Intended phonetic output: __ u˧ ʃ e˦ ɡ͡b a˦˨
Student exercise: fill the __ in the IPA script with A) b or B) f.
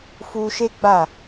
B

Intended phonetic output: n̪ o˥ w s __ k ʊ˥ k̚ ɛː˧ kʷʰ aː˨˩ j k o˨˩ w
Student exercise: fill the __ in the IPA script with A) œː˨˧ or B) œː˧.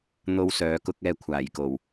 A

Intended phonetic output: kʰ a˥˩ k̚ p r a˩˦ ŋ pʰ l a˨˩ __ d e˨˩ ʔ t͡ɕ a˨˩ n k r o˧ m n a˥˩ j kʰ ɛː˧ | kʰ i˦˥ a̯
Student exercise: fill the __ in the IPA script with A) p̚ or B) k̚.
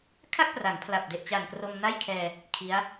A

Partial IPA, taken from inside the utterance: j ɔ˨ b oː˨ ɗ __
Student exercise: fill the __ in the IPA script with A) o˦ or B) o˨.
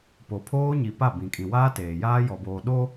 A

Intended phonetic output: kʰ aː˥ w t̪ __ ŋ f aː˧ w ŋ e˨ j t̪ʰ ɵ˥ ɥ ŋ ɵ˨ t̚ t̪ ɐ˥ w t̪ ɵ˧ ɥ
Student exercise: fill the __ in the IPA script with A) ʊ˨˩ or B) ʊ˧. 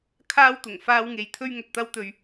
A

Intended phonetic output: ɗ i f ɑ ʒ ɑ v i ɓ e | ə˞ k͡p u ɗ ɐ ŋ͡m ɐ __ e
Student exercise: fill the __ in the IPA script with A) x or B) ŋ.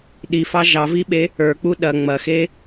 A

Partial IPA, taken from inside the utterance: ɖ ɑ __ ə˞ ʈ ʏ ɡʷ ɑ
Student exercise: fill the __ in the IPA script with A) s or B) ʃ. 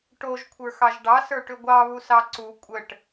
A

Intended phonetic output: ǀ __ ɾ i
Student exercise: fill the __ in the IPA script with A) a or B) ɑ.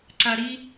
A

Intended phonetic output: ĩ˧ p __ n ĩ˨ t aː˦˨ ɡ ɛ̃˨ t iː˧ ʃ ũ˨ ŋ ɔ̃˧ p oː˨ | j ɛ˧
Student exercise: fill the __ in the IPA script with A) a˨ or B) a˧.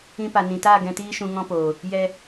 A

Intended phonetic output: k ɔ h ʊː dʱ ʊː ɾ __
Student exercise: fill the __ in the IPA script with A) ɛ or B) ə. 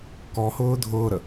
B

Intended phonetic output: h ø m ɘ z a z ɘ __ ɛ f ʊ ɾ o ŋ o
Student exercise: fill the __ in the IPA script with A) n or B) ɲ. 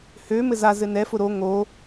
A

